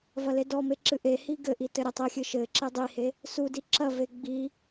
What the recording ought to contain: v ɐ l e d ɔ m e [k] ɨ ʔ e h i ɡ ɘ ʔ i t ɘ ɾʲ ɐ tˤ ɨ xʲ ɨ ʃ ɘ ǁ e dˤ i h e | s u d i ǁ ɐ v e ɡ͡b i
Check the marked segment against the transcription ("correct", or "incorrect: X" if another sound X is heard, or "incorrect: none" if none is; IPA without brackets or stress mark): incorrect: ǁ